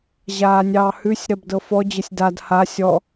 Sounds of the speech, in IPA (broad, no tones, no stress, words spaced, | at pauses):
ʑaːnʲɑːhʉsʲ ɾɜbdɤfɔ d͡ʑəsʲdad ha sʲɔ